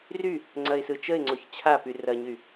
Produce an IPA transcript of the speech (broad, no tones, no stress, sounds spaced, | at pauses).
r y | ŋ͡ǀ ɐ ɪ̯ s ɯ t͡ʃ ə ɪ̯ ŋ͡ǀ o ç t͡ɕʰ a p y r ɐ ɲ y